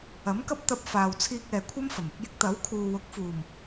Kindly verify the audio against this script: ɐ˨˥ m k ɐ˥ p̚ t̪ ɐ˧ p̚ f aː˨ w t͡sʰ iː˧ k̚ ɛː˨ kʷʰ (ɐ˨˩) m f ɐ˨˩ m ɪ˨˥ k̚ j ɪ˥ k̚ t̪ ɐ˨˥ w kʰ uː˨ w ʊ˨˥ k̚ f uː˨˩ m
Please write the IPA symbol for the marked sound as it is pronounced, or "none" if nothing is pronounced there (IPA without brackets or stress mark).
ɐ˥